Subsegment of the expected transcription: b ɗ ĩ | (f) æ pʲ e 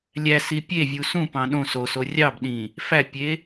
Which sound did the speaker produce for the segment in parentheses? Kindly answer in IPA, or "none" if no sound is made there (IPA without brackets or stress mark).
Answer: f